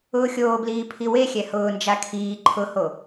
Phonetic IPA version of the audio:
ʊːxʲoːbliː pʰiwexʲɛ hʊːnd͡ʒa kʰiː ǃʰʊho

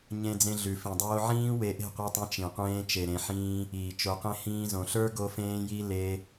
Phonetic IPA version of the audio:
ɲẽ˦d͡zẽ˦ ɮʉ˨fĩ˨ dˤoː˧ʕĩː˦ we˧ʔe̤˦˨qʷi˧tˤẽ˧ t͡ʃĩ˨ qʷẽː˧t͡ʃe˨ ɾẽ˨ħĩː˧ | iː˨t͡ʃo˧qẽ˦ hĩː˧zõ˨ɬə˞˦ ɡo˦fẽː˦ji˦ le˧

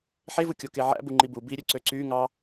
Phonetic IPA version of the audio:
ħevɯkʲoke ʕæ̰bu ŋ͡ǃibu biɾʲøǀø ǀy ŋɑ

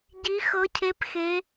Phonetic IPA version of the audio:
ɟi˦˥xɤ˦˥cʰe˦˥pxe˦˥

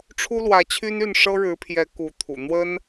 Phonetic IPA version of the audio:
ʈ͡ʂʰu˥lwä˧˥t͡ɕʰy˥n y˥˩nʂɤ˥ɻɻ̩˧˥pʰjɛ˧˥ ku˧˥t̪ʰṵ˨˩ n̪wə˥n

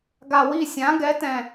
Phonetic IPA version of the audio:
ɡa˨˩wi˥˩sʲã˩˥ ɡɛ˩˥tɛ̃˨˩

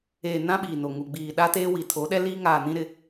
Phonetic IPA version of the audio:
eː˨nã˦ ɓiː˨no˨ ŋu˨ɡ͡biː˨ ɗa˦teː˦ wi˨tʰo˨˦ɗɛ˦liː˦ ŋaː˨nĩ˦ ɾɪ˦

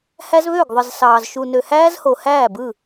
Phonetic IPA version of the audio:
hæ˦zβø˦˨ɡðˤɯ˨zsɑː˨z ʃu˨nø˨ hæː˦zho˨hæː˦˨ bɯ˦˨

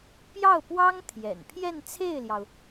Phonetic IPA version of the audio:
pjɑ˥˩ʊ̯pwɑ˥ŋ t̪ʰjɛ̰˨˩n pʰjɛ˥˧nt͡sʰe˥˩ɪ̯ljɑ˩ʊ̯

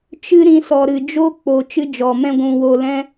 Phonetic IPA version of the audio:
t͡ʃɨ˦ ɾĩ˧sɔ˨ɾɨ˨ d͡ʒo˦k͡po˨ t͡ʃɨ˦d͡ʒɔ˨mɛ̃˦ ɡʷũ˧wo˧lɛ̃˦

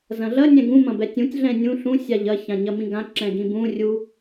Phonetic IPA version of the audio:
zɐ̃ɮɐ nʲɛ̃ɡũ mɐ̃bɛtʲũtʲ ɮɛ̃nʲũ ɬũ sʲaʎɐ çãɲɐmĩɡã ǁɛ̃ɡĩbũ rʲu

